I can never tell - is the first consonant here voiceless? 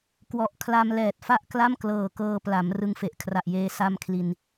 yes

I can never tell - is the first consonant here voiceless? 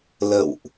no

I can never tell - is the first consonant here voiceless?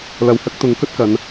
no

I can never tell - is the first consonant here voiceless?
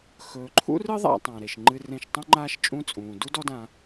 yes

